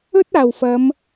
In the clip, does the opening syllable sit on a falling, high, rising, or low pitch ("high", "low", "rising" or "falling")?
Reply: high